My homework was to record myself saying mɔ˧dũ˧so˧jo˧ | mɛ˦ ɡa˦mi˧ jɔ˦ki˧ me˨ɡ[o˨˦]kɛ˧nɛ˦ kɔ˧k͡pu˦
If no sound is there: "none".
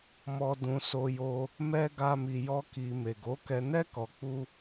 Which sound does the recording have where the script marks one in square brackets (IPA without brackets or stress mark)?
o˨˦